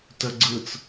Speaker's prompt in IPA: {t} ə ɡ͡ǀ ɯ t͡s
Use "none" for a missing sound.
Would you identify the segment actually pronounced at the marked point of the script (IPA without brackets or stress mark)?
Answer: t